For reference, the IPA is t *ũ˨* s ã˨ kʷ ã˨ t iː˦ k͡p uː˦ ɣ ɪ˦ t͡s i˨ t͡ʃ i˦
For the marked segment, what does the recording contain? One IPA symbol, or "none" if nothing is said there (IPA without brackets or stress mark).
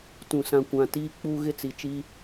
ũ˨